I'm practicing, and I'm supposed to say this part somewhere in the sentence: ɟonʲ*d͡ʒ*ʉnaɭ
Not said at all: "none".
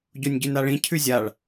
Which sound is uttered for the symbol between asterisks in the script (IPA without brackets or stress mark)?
ɟ